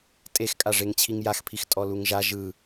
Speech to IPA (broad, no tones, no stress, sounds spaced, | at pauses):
tʼ e x kʼ a ʐ e ŋ t͡ɕʰ i ŋ j a x pʰ i x tʼ ɔ l u ŋ ʒ a ʒ ɯ